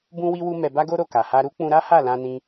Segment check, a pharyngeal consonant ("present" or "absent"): absent